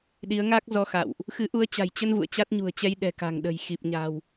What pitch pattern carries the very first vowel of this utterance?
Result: rising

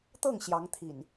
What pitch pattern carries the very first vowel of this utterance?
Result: falling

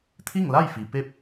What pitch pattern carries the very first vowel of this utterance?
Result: falling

